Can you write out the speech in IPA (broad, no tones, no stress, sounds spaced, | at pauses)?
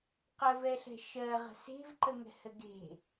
q ə v ɛ ɬ ɛ̤ ʃ ɜ ʁ ə̤ s e̤ v ǃ ə ŋ ɛ̤ h ɘ ɡ e̤